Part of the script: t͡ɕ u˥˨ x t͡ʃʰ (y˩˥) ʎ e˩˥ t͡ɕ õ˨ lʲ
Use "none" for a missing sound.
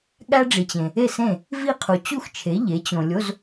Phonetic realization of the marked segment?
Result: e˩˥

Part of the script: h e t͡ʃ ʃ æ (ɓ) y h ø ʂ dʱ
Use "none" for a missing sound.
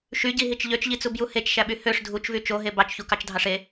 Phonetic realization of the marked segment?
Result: ɓ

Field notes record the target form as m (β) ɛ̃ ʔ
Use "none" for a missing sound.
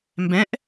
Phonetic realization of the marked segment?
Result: b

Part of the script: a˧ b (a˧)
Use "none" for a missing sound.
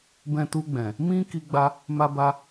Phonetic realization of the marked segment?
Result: a˧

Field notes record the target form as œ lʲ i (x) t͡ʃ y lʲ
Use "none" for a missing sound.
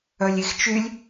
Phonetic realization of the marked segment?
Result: x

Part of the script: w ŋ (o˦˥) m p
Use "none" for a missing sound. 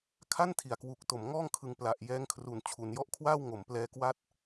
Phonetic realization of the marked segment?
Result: o˩˦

